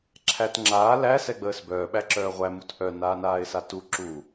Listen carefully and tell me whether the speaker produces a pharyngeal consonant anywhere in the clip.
no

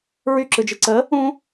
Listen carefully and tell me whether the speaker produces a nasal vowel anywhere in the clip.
yes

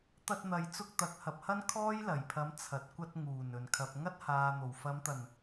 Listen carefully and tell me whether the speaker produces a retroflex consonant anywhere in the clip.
no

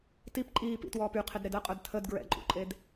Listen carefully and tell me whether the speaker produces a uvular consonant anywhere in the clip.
yes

